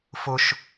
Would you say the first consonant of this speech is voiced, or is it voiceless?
voiceless